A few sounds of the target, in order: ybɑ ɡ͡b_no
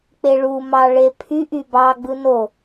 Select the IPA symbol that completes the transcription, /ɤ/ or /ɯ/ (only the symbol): ɯ